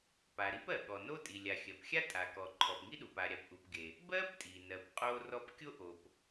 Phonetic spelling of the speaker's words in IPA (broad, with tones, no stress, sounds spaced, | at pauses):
p a˩ ɾ i˥ p ɜ˩ ɠ ɔ˩ n o˥ tʼ i˩ lʲ a˩ xʲ ɜ˩ p xʲ a˥ tʼ a˩ k ɔ˩ ǃʰ ɔ˩ p ŋ i˥ ɗ u˩ p a˩ ɾʲ a˩ p ʔ u˩ p ɡ e˩ | b ɜ˥ p tʼ i˩ n ɜ˩ p qʼ o˥ r ɔ˥ p kʲ o˥ ʔ o˩ p